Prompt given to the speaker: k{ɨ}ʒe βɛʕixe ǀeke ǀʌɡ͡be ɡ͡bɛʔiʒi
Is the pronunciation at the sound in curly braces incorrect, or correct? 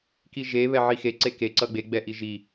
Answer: incorrect